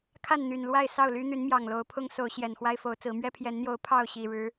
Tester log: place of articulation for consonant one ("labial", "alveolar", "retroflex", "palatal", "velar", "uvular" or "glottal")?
velar